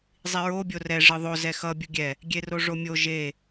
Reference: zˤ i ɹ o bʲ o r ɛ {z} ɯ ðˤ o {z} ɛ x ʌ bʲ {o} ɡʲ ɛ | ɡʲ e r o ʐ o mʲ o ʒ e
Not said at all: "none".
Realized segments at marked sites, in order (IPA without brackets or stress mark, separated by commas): ʐ, z, u